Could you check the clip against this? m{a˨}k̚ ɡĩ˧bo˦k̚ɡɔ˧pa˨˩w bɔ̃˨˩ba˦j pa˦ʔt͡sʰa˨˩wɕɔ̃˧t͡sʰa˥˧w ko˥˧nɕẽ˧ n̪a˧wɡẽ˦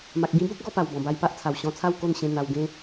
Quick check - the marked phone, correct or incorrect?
correct